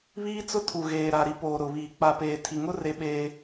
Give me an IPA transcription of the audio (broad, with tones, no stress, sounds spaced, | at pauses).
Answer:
β iː˦ t͡s ʊ˦ tʰ u˨ ɣ eː˨ ɾ a˨ ɾ i˨ p oː˨ ɾ ʊ˨ β iː˨ k͡p a˨ p eː˨ tʰ i˨ ŋ ʊ˦ r e˦ ɓ eː˦